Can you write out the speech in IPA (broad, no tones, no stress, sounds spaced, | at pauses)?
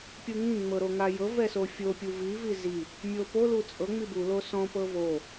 pʲ u ŋ ĩ ŋ͡m ɤ ɾ o ŋ a j ɤ v ɛ s o fʲ o pʲ u v i v i z i | mʲ o p o l u t͡sʼ ɤ ŋ͡m i b u l o s ɔ̃ p ɤ v o